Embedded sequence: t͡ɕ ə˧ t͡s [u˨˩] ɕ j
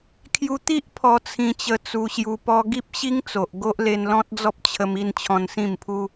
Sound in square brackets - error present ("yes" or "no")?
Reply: yes